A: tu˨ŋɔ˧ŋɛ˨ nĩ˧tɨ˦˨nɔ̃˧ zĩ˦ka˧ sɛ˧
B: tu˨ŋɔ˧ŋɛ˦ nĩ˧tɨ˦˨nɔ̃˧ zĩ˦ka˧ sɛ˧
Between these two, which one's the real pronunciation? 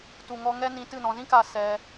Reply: B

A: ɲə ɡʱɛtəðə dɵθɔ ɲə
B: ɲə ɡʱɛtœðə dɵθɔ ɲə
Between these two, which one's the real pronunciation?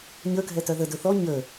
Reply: B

